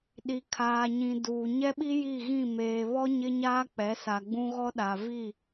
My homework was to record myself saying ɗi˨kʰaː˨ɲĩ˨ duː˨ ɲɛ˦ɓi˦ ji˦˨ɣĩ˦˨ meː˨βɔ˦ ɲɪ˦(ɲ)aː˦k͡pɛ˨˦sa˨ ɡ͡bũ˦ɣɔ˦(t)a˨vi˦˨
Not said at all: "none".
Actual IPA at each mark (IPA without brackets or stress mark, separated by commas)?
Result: ɲ, ɗ